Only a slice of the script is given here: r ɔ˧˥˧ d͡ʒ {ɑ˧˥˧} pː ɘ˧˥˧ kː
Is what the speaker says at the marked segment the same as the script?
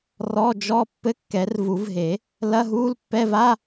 no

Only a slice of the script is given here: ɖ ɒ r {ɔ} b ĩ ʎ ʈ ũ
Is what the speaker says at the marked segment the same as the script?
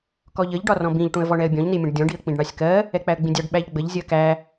no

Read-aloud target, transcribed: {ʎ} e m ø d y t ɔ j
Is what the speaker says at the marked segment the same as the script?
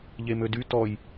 yes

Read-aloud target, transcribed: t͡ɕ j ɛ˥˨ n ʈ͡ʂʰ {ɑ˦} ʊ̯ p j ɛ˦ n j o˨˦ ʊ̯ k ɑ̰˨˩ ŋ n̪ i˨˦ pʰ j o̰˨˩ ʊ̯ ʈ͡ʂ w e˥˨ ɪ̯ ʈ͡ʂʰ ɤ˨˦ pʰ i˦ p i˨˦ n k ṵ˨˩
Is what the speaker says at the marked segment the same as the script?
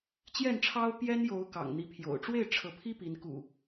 yes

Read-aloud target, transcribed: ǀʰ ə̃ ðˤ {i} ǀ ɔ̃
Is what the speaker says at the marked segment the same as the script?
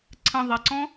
no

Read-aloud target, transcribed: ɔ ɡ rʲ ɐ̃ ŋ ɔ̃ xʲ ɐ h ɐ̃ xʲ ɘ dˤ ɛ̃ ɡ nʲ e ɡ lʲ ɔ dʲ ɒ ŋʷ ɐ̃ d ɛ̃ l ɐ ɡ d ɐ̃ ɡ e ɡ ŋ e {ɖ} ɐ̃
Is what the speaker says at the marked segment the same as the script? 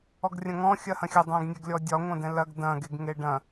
yes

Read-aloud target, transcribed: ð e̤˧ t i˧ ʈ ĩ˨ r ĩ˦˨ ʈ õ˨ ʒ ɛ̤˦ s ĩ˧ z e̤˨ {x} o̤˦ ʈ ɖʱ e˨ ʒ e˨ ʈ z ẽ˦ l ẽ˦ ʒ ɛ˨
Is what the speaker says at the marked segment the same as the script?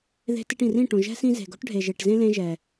no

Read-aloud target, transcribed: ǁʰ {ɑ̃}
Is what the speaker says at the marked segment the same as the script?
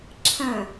no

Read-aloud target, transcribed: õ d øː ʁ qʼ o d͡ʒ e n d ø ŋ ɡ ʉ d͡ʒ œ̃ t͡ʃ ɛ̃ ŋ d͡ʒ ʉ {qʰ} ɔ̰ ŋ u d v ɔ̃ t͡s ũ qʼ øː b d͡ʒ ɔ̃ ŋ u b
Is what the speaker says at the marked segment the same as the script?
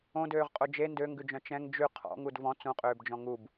yes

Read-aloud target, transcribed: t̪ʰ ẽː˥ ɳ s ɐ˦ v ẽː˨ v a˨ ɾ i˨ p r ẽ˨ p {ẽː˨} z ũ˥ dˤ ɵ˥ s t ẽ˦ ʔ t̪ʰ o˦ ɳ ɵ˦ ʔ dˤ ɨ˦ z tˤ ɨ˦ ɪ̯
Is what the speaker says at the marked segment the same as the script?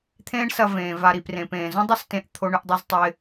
yes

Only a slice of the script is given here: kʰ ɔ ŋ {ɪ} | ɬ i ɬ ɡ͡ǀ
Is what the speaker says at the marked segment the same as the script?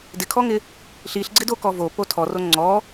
yes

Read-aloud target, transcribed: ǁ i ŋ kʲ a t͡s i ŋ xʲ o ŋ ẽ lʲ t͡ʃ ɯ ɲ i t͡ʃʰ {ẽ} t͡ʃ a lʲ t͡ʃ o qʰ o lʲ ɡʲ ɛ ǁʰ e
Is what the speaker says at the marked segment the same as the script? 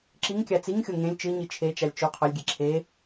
no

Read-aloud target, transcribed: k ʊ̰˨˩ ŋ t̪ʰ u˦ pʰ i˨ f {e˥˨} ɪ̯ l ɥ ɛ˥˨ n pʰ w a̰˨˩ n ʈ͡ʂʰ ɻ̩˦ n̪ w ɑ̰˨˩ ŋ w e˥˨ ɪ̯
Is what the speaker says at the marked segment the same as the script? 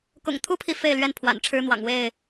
yes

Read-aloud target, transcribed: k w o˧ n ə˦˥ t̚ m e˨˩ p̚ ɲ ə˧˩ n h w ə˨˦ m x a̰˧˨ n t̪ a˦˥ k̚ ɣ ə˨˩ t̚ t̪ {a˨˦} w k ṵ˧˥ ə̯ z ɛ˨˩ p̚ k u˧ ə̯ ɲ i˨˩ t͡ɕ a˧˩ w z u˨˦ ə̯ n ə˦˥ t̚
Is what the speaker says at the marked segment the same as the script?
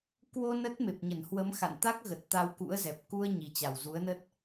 no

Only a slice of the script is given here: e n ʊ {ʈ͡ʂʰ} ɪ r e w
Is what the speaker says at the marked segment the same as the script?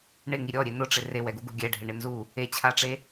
no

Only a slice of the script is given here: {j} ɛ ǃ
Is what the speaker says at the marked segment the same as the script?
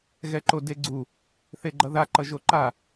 no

